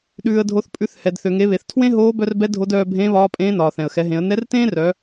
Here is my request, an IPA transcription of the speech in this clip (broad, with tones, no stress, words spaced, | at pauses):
ɗʉː˩ə̯dʱo˩˧θ pʼʉ˩˧θhɛ˩d θø˩ŋe˩˧βe˩θ tʰwẽ˥ɦoː˧˥ bœ˧rbɛ˧˥ dʱo˧˥dœː˧ bʱẽː˧˥βɒː˧˥pʼẽː˧˥ nɒː˩θɛ̃˩ə̯xɛ˩˧ɦẽ˩˧ə̯ nɛ˧˥rtẽː˥rœ˩˧